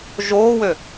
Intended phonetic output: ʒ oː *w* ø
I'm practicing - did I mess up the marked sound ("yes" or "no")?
no